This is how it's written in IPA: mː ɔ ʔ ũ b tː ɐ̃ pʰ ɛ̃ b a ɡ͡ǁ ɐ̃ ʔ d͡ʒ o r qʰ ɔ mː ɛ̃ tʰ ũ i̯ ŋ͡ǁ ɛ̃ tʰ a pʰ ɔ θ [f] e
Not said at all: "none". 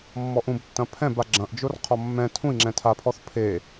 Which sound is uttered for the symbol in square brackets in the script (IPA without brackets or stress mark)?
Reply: pʰ